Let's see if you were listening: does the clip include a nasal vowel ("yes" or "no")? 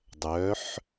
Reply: no